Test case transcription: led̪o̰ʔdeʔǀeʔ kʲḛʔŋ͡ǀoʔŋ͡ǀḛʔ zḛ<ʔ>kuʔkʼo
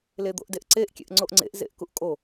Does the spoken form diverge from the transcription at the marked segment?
no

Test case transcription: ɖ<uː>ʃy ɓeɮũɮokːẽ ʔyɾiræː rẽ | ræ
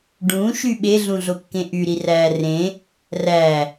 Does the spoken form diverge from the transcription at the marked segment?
yes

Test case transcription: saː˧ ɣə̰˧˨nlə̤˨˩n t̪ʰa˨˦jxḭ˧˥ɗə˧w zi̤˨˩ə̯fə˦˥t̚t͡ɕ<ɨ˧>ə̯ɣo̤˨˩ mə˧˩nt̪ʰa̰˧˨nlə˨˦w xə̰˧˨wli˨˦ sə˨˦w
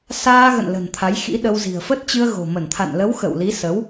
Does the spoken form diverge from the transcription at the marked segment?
no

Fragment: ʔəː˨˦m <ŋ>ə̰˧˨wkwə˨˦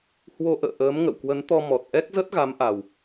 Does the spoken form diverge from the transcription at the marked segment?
no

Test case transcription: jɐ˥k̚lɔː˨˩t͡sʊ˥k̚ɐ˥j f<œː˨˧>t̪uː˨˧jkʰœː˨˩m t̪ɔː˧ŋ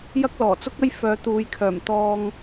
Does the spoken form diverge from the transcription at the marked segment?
no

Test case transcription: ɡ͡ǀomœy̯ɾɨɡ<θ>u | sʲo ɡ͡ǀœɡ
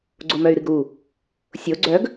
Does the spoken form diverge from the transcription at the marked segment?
yes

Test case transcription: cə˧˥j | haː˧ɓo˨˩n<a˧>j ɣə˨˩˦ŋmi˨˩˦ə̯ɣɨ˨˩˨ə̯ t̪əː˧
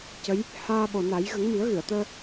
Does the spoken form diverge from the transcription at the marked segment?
yes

